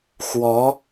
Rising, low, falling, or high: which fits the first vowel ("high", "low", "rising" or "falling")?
rising